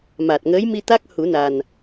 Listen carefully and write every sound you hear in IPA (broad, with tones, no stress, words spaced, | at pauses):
ma˨˩t̚ ŋəː˧˥jmi˧t̪a˦˥k̚ hu˨˩˦na˨˩n